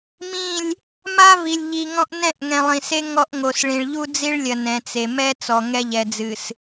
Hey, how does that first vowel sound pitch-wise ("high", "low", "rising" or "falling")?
falling